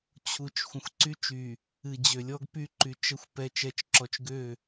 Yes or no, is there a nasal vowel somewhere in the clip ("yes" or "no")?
yes